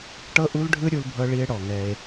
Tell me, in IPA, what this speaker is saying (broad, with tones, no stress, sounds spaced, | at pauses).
ʈ ɤ˦ ʔ u˦ l ɖʱ ɯ˦ ɾʲ u˧ l bʱ ɤ˧ ɭ i˧ e̯ ɽ ɔ˨ ŋ ɛ˧ e̯